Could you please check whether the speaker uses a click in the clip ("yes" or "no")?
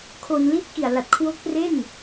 no